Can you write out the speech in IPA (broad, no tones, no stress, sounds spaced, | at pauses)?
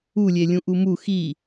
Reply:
u lʲ e lʲ ũ ʔ u m u x i